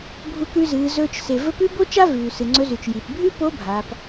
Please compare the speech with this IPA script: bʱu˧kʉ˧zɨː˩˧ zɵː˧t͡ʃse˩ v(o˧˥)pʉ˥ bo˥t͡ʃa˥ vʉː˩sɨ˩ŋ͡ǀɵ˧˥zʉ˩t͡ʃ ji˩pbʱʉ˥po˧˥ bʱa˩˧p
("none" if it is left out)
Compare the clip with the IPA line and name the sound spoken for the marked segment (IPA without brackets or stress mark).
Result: ɵ˧˥